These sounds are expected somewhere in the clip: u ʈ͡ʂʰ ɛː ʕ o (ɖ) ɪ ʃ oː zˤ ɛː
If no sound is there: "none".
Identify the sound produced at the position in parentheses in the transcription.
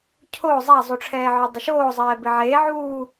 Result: dˤ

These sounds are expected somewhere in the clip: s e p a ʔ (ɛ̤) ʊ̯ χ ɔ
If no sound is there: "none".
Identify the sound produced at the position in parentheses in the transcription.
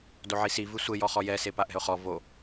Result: ɛ̤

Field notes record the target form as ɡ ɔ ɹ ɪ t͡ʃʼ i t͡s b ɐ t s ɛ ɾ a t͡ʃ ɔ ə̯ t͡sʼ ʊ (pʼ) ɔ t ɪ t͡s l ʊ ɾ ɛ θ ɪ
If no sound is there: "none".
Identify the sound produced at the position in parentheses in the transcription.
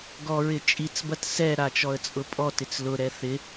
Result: pʼ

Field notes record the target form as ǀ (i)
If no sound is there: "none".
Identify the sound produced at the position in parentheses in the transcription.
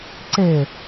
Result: e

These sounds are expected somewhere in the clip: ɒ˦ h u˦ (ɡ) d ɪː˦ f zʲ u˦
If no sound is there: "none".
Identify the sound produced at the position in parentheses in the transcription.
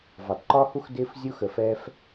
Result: x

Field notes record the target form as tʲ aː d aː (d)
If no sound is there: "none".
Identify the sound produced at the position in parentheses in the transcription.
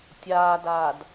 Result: d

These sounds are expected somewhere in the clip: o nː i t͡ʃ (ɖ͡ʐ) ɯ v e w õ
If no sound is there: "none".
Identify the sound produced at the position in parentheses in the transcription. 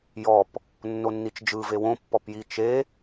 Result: d͡ʒ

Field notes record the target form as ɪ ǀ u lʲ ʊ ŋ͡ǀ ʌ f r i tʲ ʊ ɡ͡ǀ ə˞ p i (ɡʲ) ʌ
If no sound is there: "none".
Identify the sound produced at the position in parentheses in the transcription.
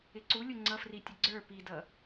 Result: d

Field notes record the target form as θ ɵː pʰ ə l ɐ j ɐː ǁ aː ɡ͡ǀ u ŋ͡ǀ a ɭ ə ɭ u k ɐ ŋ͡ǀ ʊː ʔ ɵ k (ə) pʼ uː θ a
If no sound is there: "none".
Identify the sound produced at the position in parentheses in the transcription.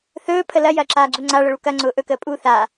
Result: əː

